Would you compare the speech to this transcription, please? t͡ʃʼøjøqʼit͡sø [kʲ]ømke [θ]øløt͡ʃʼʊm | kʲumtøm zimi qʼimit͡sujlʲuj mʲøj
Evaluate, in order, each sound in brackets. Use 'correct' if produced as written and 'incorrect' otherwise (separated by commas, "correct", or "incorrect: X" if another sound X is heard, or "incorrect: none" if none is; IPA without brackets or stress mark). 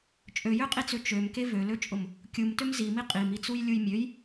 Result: incorrect: t͡ʃ, incorrect: v